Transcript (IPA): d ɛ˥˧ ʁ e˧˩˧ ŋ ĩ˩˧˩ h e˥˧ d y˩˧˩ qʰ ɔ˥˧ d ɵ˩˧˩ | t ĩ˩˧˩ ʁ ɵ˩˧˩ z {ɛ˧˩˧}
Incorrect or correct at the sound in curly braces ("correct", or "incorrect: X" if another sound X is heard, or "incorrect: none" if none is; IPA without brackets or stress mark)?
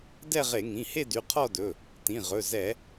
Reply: correct